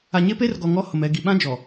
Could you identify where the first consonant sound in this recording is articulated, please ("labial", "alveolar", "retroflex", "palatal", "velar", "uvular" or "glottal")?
palatal